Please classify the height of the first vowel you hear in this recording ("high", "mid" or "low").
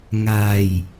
low